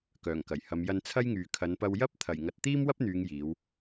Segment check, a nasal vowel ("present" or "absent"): absent